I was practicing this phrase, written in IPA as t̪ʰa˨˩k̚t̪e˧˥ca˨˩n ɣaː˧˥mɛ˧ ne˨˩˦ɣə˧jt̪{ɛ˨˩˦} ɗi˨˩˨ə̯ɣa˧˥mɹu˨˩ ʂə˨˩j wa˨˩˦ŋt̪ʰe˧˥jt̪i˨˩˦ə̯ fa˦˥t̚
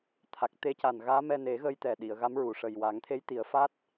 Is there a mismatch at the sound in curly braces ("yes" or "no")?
yes